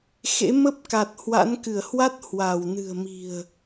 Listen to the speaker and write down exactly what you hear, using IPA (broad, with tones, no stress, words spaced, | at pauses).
xḛ˧˥ mə˦˥p̚ka˨˩t̚ hwa̰˧˥nkɨ˧˩ə̯ hwa˦˥t̚ hwa˧˩w nɨ̤˨˩ə̯mi̤˨˩ə̯